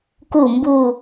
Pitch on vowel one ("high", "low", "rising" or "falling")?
falling